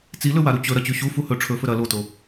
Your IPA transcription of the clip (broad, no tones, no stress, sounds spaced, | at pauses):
t͡s i l ɵ w a ɾ u t͡ɕ ɵ ɾ ɐ t͡ɕ ʉ ɕ u f u h ɵ ʈ͡ʂʰ ɵ f ɵ ɾ ɐ l o t o